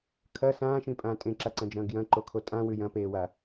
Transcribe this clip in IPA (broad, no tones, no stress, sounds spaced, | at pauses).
kʰ ɐ s ãː ʃ ĩ pʼ ãː tʼ ẽ ǁ a ǀ ɐ̃ d͡ʒ ɐ̃ː ɡ j ɐ̃ ǃ o kʰ o tʼ ã w ʉ j ɐ̃ p eː w a